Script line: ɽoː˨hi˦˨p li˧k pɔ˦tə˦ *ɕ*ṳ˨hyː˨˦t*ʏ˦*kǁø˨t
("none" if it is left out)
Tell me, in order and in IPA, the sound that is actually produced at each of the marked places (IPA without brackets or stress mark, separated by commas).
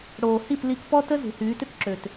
z, ʏ˦